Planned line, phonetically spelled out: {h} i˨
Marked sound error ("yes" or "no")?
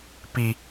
yes